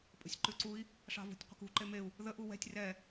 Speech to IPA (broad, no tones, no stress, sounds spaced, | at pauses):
pʼ ə̤ sʲ ǃ ʉ ǀ u i̯ | ʂ ɑ̤ v ṳ tʲ qʷ ə̤ k ṳ ǃ e m e u̯ | ð ə ʔ u w ɛ̤ tʲ r ɛ